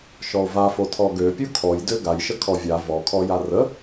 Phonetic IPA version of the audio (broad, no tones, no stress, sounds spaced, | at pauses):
ʃ ɔ o̯ v a f o tʰ ɔ ɡ ø pʲ u kʰ ɔ j d ø ɡ a j ʃ ə kʰ ɔ vʲ a v ɔ kʰ ɔ j a r ə